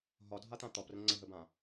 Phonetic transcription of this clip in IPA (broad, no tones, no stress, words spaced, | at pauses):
ɦɒdʱat̪ã t̪ɒprə̃ ŋ͡ǀəɦəbã